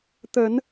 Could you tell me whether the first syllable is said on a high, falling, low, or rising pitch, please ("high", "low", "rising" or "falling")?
rising